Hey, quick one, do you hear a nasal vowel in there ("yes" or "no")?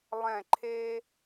yes